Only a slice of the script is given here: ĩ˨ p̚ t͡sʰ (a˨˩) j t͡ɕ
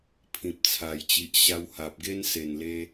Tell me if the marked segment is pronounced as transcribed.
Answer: yes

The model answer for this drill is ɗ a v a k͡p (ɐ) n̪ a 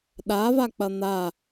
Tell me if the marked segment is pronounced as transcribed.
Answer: yes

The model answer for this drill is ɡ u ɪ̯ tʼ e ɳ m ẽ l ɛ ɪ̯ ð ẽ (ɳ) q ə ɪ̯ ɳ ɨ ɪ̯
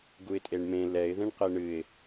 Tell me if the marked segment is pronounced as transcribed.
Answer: yes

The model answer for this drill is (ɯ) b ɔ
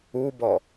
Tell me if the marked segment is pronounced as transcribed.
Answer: no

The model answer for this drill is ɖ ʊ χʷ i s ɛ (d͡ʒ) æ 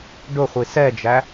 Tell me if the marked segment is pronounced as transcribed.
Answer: yes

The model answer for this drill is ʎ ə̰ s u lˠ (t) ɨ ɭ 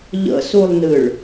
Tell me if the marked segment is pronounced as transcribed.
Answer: no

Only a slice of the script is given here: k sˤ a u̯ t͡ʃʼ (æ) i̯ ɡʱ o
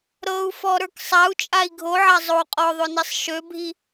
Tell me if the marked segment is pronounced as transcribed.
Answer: no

